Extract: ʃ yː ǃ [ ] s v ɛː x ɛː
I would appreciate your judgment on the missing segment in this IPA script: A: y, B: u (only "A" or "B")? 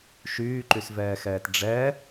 A